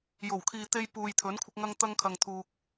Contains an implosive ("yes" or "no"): no